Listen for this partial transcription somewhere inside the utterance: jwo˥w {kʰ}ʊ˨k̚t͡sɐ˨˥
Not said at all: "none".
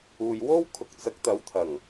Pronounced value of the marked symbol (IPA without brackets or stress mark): kʰ